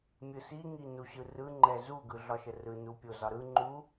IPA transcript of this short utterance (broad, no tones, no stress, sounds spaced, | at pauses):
mʲ ɯ s i ŋ i n u ɕ ɯ r ɯ ŋ͡ǃ ɛ z u ɡ ɯ ɮ ɒ ʃ ə r ɯ n u pʲ o z ɒ ɾ ɯ ŋ͡ǃ u